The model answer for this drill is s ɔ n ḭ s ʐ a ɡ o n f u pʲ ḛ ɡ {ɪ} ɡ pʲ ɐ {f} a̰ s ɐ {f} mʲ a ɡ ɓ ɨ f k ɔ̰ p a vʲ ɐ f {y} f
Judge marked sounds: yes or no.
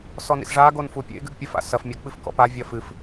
no, yes, yes, no

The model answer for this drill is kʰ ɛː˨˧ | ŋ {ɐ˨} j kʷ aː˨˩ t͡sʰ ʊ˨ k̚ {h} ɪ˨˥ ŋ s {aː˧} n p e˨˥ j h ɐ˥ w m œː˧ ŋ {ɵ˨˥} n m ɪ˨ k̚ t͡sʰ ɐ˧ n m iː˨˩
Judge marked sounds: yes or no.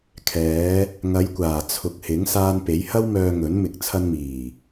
no, yes, yes, yes

